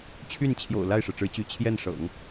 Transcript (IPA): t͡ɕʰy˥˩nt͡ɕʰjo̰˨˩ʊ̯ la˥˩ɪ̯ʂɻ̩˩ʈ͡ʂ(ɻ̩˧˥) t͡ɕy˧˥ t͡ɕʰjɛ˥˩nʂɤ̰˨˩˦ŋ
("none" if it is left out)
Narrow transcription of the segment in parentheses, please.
ɻ̩˧˥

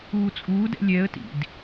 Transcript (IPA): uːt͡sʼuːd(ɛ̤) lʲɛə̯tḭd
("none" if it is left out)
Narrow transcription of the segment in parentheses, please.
ɛ̰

